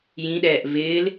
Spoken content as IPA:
j ĩ ɗ ɛː ʔ v ɪː l

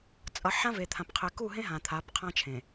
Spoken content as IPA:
t͡sʼ ʌ˨ ħ ã˦ v e˨ t̪ʰ ã˨ p qʰ e˨ k u˦˨ ɦ ẽ˦ ɦ ã˨ t̪ʰ a˨˦ p qʰ ã˦ t͡ʃʰ ẽ˨

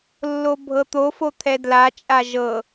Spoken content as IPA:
lː o bʱ ɤ t̪ o f o t̪ʰ ɛ d l a t͡ʃʼ a ʒ ɤ

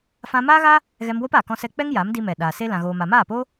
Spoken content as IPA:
f ã˧ m aː˦ ɣ a˦ | ɣ ɛ˧ m w o˦ p aː˨ k ɔ̃˦ s ɛ˦ k͡p ɛ˦ ŋ j a˨˦ m d i˧ m ɛ˨ ɗ aː˨ s e˦ l ã˧ ɣ oː˧ m a˧ m aː˦˨ p o˦

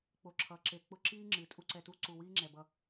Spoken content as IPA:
k͡p o˧ ǁʰ ʌ˨˦ ǁ e˧ k͡p ʊ˦ ǁ iː˦ ŋ͡ǁ ɨ˨ tʼ u˦ ǀ ɛ˧ t u˦ ǀ u˨ w iː˦ ŋ͡ǁ ɛ˨ b ʌ˧

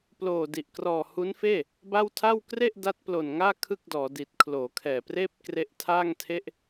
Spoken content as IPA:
p l oː˨˩ d i˨˩ ʔ k r ɔː˨˩ h u˦˥ n f eː˥˩ | b a˥˩ w tʰ a˥˩ w k r e˥˩ ʔ d a˦˥ t̚ p l o˨˩ n ŋ aː˥˩ kʰ ɯ˥˩ k̚ d ɔː˩˦ d i˨˩ t̚ kʰ l oː˩˦ kʰ ɛː˨˩ p r eː˥˩ p̚ k r e˦˥ ʔ tʰ aː˥˩ ŋ tʰ e˥˩ ʔ

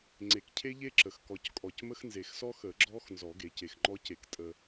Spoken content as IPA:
ŋ͡ǀ e˨ k cʰ e˦˥ ʎ e˦˥ ǁ ə˨ x k ɔ˨ c kʼ ɔ˨ c m ə˦˥ x n z e˨ x s ɔ˦˥ x ə˨˩˦ ɡ͡ǁ ɔ˦˥ x n z ɔ˨˩˦ ɡ e˨˩˦ c e˨ x ŋ͡ǃ ɔ˦˥ c e˨ k tʼ ə˨

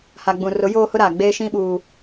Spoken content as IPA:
h a˨ ɡ͡b ũ˨ r ʊ˨˦ j oː˦ h ʊ˦ ɾ aː˨ ɡ͡b eː˦ ʃ ĩ˦ ɓ uː˨

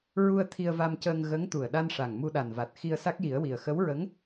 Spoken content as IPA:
ɹ u˧ ə̯ t̪ʰ i˧ ə̯ v a˧ m c əː˧ ŋ ɣ ə˧˥ ŋ t̪ u˨˩ ə̯ ɗ a˧ n ʂ a˨˩ ŋ m u˧ ɗ a˨˩ n v a˨˩ t̚ x i˧ ə̯ s a˦˥ k̚ j i˨˩˦ ə̯ w i˨˩ ə̯ x ə˧˥ w ɹ ə˧˥ ŋ

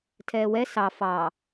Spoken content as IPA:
tʰ ɛː w ɛ s ɑ f ɑ

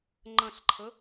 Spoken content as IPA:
ŋ͡ǃ ə̃ ɬ ǃʰ ə

